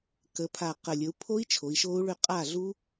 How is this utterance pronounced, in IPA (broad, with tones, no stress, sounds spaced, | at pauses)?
k ə˩˧ pʰ a˨˩ q ə˨˩ lʲ ə˩˧ u̯ pʰ o˦˥ i̯ t͡ʃʰ o˩˧ i̯ ʃ o˦˥ u̯ ɭ ʏ˥˩ qʼ a˥˩ ɮ u˦˥